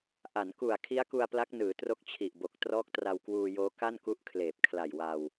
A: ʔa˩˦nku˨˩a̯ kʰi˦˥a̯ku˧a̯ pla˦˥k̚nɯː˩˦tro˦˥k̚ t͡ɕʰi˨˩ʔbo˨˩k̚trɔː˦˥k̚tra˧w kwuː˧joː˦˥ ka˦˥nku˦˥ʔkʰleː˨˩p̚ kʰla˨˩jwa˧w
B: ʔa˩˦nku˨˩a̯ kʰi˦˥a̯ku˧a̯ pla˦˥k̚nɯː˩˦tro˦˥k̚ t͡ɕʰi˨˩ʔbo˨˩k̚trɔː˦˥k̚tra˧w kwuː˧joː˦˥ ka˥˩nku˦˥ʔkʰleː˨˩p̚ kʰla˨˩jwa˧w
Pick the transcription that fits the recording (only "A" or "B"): B